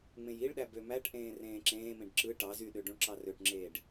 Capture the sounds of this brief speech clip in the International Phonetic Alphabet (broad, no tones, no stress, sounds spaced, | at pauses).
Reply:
ŋ͡m ẽ j i ɭ ɗ æ b ø m æ ʈ ʔ ẽː r ẽː ǁ ẽː m ẽ ɖ ǁ ɯ ʈ ɑ z y ɗ ø ɖ ũ ɭ ǁ ɑ r ø ʈ ŋ͡ǁ eː ɖ